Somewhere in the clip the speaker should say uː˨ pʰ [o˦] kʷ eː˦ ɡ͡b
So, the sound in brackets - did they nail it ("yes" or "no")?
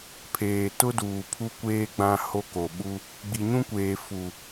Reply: no